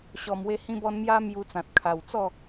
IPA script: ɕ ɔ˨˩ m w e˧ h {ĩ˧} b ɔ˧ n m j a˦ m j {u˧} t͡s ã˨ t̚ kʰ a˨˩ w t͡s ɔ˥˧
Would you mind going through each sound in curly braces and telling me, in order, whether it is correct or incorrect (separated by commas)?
correct, correct